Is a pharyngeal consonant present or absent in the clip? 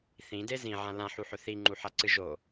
present